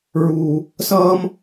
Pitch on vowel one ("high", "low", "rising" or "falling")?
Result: high